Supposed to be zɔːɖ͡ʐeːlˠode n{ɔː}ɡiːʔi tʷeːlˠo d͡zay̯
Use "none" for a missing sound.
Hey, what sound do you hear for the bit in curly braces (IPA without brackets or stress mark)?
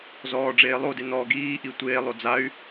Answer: ɔː